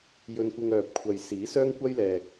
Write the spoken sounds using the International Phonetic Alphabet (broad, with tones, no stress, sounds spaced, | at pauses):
j ɵ˥ n kʷ ɪ˥ ŋ œː˨ p̚ kʷʰ ɐ˨ j s iː˨˥ s œː˥ ŋ kʷ ɐ˥ j l ɛː˨ k̚